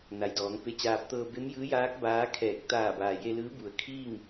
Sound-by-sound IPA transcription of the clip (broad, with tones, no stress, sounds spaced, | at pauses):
n a˩ j d ɔː˩˧ ŋ p e˧ t͡ɕ aː˧ p̚ t̪ ɤː˧ b e˧˥ m j ɯː˧˥ j aː˧˥ k̚ b aː˧˥ kʰ ɛː˧˩ k̚ t̪ aː˧˩ b aː˩ j e˧ l ɯː˧˥ b u˩ ə̯ kʰ iː˥˨ ŋ